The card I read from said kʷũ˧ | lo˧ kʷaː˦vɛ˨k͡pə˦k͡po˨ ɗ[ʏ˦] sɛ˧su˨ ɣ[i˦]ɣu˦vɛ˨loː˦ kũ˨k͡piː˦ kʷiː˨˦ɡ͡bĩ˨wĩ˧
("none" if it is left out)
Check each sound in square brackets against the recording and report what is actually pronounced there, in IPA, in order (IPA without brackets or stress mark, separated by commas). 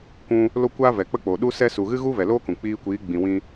u˦, ɨ˦